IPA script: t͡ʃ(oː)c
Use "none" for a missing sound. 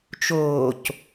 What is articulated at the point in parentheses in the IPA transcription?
oː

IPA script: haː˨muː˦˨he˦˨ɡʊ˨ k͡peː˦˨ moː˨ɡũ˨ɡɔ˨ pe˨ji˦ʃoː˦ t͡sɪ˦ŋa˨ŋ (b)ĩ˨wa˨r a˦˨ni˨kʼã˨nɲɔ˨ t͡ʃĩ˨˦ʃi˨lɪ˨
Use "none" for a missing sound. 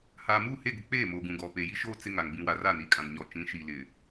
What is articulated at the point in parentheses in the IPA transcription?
b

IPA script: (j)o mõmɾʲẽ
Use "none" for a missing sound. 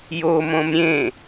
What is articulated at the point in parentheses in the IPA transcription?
j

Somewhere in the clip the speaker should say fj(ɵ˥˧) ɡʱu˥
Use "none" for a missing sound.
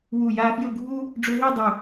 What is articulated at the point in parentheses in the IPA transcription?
ɵ˥˧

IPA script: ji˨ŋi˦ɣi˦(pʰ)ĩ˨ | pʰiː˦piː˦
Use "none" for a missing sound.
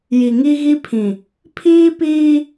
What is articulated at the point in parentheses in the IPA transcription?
pʰ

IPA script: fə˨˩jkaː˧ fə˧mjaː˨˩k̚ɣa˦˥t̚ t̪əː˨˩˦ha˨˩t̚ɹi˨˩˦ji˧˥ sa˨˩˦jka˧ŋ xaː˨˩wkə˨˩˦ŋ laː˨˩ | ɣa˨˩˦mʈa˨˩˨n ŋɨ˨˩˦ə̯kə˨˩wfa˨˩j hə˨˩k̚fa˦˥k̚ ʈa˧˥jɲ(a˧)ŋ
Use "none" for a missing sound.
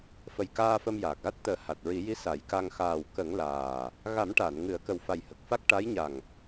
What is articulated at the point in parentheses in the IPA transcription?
a˨˩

